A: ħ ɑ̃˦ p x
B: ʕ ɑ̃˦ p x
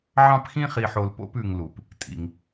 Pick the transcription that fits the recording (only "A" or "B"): B